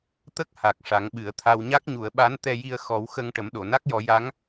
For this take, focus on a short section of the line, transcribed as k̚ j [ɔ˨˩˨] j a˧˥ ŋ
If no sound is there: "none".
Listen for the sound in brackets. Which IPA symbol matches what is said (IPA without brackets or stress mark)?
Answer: ɔ˨˩˦